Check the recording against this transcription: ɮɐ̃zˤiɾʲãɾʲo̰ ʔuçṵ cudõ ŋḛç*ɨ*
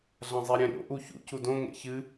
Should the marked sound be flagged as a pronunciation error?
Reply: no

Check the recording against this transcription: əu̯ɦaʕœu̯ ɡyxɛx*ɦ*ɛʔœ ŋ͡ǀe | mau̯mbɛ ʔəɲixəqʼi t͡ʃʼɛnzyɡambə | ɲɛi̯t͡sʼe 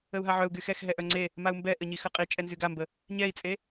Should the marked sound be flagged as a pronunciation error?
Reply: no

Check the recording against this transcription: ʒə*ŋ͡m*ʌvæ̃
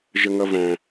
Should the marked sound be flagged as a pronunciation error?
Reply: yes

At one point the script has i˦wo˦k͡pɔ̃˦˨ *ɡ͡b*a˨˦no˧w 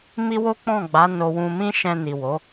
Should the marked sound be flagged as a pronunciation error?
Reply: no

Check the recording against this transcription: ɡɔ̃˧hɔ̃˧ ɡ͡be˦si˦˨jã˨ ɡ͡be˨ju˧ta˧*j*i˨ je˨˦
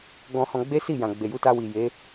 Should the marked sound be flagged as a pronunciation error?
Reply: yes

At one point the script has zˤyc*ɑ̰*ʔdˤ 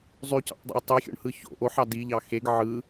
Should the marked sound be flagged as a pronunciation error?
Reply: no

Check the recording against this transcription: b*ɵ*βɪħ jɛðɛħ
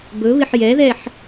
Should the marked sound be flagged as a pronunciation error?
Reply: no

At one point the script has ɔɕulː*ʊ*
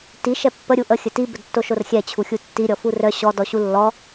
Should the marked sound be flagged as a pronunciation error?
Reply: yes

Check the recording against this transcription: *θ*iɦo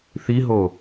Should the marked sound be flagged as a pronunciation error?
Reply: no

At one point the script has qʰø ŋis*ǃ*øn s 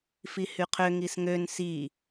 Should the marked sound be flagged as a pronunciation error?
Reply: yes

